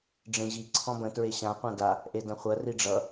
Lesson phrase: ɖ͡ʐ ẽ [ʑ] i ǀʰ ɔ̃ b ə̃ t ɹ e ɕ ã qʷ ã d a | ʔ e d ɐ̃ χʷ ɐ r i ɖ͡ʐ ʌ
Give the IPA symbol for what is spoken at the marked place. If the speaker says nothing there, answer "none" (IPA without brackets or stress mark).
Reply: ʑ